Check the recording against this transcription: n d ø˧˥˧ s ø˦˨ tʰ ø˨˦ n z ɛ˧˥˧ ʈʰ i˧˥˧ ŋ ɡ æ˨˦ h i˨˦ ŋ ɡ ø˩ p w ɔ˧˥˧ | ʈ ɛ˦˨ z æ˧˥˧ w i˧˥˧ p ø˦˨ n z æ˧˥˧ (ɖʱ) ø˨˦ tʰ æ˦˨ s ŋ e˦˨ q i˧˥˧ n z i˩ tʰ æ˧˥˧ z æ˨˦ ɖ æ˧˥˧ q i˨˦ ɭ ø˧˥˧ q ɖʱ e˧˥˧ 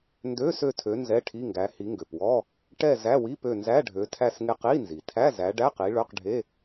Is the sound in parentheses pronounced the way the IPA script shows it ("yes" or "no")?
yes